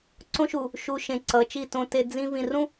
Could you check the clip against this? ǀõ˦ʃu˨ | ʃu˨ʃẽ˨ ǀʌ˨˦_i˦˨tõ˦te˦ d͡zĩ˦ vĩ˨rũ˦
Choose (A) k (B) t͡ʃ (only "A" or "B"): B